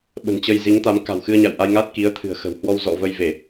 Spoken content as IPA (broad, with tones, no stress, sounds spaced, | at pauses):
ɓ ə̤˨˩ n t͡ɕ ə˧ j z i˨˦ ŋ t̪ a˨˦ m k a̤˨˩ w x ɨ˧ ə̯ ɲ a̰˧˨ w ʔ a˧ j ŋ a˦˥ t̚ k i˨˦ ə̯ t̪ʰ ɨ̤˨˩ ə̯ x ə̤˨˩ w h w ɔ˧ w z ɔ̰˧˨ v ə˧ j v e˧˩˨